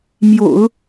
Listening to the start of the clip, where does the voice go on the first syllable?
low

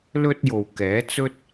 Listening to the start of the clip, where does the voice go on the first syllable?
high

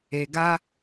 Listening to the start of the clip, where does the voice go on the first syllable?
low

